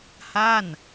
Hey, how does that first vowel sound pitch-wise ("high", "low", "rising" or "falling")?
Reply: falling